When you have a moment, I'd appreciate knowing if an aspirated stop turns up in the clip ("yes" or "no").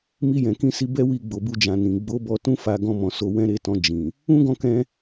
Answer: no